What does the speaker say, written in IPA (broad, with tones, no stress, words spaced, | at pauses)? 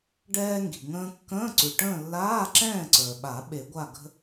ɖɛː˧ŋɡi̤˩ ŋə̃ː˧kːə̃ː˧˥˧ǀʉ˩ʈə̃ː˥˨ lːaː˧˥˧ǁɛ̃ː˥˨ǀə˞˩ɓa˨˩˦ ɓe˨˩˦ɡʷa˥˨ ɡə̤˥